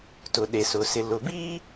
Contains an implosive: yes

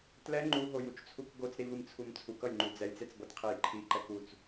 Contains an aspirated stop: yes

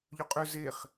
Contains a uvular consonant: yes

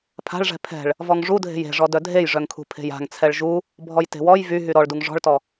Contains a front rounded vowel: yes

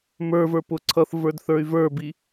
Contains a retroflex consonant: no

